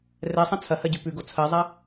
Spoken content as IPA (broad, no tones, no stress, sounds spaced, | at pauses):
r ɛ sˤ ɐ̃ t͡sʰ ɐ h ɜ ɟ ʉ p ʉ ɡ o t͡sʰ ɜ zˤ a